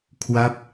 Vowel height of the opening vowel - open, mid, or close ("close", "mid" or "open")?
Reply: open